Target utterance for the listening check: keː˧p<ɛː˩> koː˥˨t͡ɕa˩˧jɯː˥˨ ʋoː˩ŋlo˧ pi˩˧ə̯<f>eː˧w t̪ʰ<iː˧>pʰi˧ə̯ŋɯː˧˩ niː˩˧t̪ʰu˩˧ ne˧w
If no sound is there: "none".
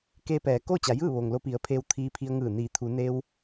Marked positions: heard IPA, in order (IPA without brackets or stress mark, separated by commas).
ɛː˩, pʰ, iː˧